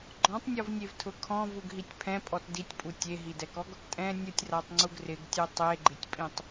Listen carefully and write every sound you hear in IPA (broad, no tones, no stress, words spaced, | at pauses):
ɡ͡ǃɔ̃tˤnʲɔvnʲevtʰʊ kʰɔ̃vuɡɦitʲ pʰɛ̃pʼɔt ditʲpʼu tʲeɦidɛkɔɡ | tʼɛ̃ nʲʊtʲratˤŋ͡ǀuɡ rɪɡtʲʊ tˤeɡ͡ǃɪtʲpʼĩtˤ